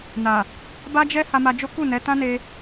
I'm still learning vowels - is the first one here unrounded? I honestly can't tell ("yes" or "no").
yes